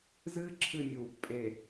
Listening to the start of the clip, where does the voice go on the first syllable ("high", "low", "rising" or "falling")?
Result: high